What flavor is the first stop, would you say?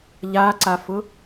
click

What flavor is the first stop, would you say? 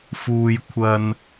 aspirated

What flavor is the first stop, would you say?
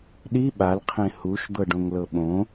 implosive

